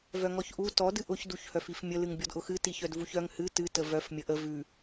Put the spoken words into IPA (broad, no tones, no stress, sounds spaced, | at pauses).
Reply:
v œ ŋ ɔ ç ʔ u t ɔ d ɨ ʔ ʊ ç d u ç h œ f i f mʲ ə l ɨ ŋ bʲ ɔ d ʔ ʊ x ɨ t i ç œ d v u ç œ ŋ h ɨ t ɨ t ə v œ f mʲ ə ʔ ə v ʉ